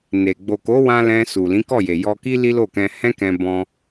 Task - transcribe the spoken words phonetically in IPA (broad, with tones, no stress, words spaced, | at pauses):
ne˨ ɡ͡bo˨ko˨˦wã˧ lɛ̃˧su˨ lĩ˨˦kɔ˦˨je˨jɔ˧ ki˦li˦lo˦˨kɛ̃˧ hɛ̃˦ kɛ̃˧bɔ̃˧